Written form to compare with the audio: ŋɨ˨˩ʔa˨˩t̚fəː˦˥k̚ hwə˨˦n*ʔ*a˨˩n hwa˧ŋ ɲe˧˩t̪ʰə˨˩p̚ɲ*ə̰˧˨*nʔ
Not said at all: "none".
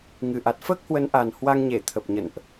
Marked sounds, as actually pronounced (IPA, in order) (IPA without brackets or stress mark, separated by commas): ʔ, ə̰˧˨